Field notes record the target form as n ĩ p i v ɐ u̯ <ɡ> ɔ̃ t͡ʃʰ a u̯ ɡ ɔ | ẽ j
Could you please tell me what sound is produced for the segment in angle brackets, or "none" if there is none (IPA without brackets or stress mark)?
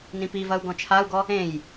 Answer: ɡ